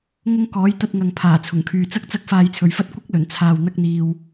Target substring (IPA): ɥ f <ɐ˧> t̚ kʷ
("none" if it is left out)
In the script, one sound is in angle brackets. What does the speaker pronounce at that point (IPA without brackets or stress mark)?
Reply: ɐ˥